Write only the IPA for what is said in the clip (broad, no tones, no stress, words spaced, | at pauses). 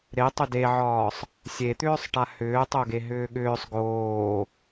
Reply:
ɾe tˤʏdeʕɒːsˤ | sʲet̪ʏːsˤʈa hʏːtˤoɡe ɦʏːɠʏːsˤ ɡoː